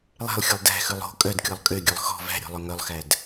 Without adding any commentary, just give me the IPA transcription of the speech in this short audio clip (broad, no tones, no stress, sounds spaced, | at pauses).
lˠ æ̤ lˠ xʲ ɵ lˠ d æ̤ x ʉ lˠ o̤ kʼ œ d kʲ ɔ lˠ kʼ ø ɡʲ œ lˠ x ɔ̤ v æ̤ ɾʲ ɔ̤ lˠ ɵ ŋ œ lˠ x æ d